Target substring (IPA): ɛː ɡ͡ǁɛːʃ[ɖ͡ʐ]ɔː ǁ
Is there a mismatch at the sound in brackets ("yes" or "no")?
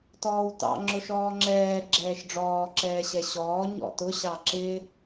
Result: no